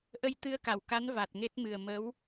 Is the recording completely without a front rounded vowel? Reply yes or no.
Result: yes